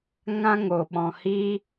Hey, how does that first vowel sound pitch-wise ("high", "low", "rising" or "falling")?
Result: high